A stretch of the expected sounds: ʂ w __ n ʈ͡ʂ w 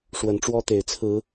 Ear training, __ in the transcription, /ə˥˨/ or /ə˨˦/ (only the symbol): ə˨˦